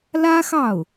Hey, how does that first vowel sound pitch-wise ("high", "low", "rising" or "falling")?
high